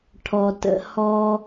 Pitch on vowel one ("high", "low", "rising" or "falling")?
low